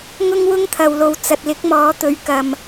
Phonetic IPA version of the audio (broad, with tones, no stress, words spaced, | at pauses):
ŋʊ˥ŋwʊ˥ŋt̪ʰɐ˨wlo˨w t͡sɐ˨t̚lɪ˨˥k̚mɔː˨˥ t̪ɵ˨˧ɥkɐ˨m